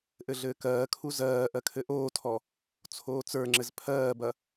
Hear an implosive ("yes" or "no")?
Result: no